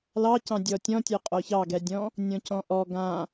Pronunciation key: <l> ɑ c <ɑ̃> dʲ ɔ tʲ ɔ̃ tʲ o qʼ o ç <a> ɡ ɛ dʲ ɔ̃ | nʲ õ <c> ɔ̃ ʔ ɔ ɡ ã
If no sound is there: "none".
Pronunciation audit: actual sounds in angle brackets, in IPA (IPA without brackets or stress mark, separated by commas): l, ɑ̃, ɑ, c